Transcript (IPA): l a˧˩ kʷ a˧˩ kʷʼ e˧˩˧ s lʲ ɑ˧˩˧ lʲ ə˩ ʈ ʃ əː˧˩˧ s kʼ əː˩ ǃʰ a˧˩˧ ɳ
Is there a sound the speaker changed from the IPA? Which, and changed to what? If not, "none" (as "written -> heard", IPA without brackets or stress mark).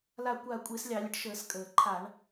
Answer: none